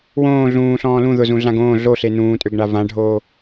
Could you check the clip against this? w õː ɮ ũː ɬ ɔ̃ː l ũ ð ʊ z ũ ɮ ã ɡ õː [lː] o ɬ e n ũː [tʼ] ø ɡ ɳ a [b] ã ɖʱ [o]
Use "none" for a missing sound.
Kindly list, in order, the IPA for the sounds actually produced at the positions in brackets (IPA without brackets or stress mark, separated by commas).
ɮ, tʼ, v, oː